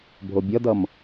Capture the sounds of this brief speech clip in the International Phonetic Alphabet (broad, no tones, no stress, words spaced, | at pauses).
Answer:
bʱobʲʌdʌm